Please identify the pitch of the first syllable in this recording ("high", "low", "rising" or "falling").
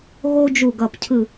high